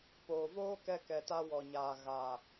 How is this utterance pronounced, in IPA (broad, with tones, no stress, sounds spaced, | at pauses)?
p oː˨ v oː˦ k ɛ˧ k ɛ˨ t a˧ w ɔ˨ ɲ aː˨ ɣ a˨